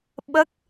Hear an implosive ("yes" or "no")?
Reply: yes